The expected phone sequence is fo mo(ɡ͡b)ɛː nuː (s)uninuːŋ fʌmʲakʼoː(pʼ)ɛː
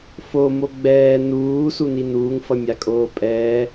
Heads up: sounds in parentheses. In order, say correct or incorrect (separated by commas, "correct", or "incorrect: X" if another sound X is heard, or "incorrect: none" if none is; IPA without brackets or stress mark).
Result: correct, correct, correct